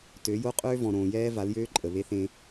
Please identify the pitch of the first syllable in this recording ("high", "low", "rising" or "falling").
rising